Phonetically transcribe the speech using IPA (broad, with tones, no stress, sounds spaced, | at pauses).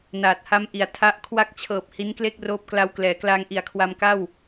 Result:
n aː˨˩ t̚ h a˦˥ m ʔ i˩˦ a̯ tʰ a˦˥ ʔ kʰ w a˦˥ k̚ t͡ɕʰ ɤː˨˩ p̚ h i˦˥ n k l e˥˩ k̚ r oː˦˥ p̚ k l a˦˥ w k l ɛː˩˦ k l aː˧ ŋ ʔ i˨˩ a̯ kʰ w a˧ m k a˥˩ w